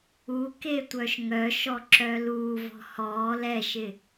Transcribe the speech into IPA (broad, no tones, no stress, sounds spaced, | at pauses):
u k e tʷ œ ʃ ŋ œ ʃ ɔ ǁ œ l uː v ɔ̤ h ɔː l ɛ ʃ ɪ